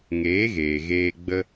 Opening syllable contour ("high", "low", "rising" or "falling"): rising